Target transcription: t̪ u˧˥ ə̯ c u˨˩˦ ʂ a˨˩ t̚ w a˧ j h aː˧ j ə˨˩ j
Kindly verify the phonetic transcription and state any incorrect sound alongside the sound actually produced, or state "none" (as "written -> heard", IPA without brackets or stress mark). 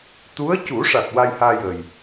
none